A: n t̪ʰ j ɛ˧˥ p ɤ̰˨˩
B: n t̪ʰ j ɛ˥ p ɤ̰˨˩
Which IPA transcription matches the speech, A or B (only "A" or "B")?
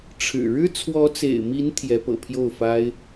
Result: A